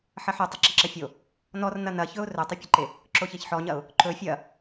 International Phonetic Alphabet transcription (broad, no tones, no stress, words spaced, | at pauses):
ħɐħɵ tˤɐǁɐǁɐfʲo | nɔrnɐ nɐçɵʊ̯ rɵtˤɵpʲɐǃe | ǁoçeçħɔɲɐʊ̯ | ǃɵ fʲɐ